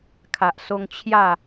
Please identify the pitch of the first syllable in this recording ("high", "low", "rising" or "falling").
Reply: low